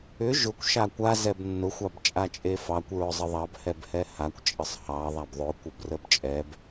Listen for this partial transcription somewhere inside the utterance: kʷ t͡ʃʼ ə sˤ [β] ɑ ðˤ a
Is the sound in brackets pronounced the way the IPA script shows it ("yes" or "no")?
no